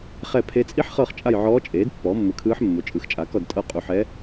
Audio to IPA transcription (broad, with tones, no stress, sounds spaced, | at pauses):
χ ɛ˦˨ pʰ e˧˥ t͡sʼ i˥ ħ χ ɤ˦˨ χ t͡ʃʼ a˦˨ j ʕ ɔː˧˥ t͡ʃʼ eː˩˥ d pː ɔː˩˥ mː ɯ˨ kʰ ɯː˧˥ ħ mː o˩˥ t͡ʃʼ ɯ˩˥ x t͡ʃʼ a˩˥ k ɔ˦˨ d tʼ ɤ˦˨ qʼ u˨ ħ ɛ˧˥